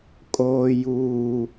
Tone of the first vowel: low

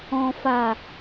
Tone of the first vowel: low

